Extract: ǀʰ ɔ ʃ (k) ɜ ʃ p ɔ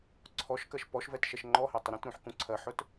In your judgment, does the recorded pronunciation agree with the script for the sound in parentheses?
yes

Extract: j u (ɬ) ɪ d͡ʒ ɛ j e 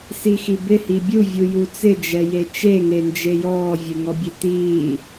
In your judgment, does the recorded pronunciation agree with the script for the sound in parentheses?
no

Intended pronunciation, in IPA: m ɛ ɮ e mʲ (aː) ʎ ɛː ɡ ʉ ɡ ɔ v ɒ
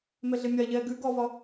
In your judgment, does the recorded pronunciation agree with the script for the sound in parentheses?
no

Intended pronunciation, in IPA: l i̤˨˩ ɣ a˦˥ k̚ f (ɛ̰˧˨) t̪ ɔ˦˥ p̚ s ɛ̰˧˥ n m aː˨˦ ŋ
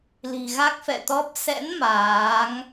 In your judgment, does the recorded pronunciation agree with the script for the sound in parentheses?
yes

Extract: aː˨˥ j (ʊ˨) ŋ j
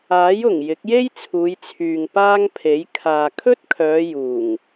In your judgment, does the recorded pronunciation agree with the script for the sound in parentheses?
no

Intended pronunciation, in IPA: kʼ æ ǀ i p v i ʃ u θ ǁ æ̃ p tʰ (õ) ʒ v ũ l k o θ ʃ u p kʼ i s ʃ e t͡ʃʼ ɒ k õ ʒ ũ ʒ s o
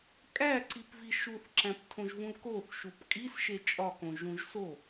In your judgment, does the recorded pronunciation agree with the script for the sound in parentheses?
yes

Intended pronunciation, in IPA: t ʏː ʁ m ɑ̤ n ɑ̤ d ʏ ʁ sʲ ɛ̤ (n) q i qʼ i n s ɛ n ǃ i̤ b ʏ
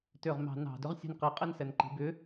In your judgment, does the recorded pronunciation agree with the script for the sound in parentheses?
yes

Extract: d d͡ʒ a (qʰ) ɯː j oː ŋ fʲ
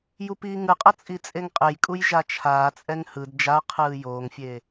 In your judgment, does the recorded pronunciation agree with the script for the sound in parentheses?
yes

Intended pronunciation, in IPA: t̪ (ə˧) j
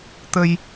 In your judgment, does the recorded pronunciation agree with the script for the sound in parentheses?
yes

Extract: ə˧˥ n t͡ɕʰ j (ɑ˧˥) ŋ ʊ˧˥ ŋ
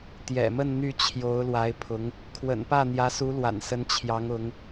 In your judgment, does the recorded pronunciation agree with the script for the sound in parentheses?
yes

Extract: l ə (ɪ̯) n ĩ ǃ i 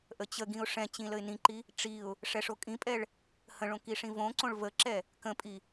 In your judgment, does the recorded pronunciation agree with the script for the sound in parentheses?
yes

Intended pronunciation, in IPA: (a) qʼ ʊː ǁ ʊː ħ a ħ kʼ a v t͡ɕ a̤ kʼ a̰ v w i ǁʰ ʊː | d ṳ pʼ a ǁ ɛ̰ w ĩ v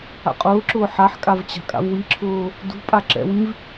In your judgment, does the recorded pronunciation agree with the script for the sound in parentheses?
no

